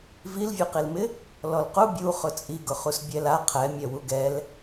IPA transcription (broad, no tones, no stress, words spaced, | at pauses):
vilvʲuqilmɪ | lɔlqu bʲu χʊt͡sʼiɡʊχus bʲɛla qʰɛmʲɛ wuɡɛl